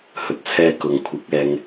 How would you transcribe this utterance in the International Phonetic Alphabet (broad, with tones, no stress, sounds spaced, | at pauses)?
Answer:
h ɵ˨ t̚ t͡sʰ ɛː˧ k ʊ˨ ŋ kʷʰ ɪ˨˥ k̚ ɛː˧ ŋ